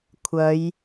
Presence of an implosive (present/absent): absent